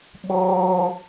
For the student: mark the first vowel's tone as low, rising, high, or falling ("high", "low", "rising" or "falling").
high